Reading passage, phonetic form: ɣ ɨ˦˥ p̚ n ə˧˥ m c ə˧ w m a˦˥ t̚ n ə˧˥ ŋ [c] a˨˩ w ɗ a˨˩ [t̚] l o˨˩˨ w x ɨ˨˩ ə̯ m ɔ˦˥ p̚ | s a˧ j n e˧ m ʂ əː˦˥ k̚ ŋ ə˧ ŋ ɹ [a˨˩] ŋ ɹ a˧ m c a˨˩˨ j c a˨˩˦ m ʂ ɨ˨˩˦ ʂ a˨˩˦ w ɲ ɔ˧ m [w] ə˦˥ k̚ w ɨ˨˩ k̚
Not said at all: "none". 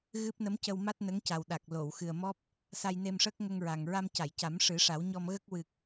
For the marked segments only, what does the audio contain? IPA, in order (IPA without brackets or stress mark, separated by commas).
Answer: c, k̚, a˨˩, ɣ